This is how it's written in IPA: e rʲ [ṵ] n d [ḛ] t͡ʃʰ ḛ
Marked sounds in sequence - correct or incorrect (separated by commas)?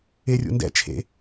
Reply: correct, incorrect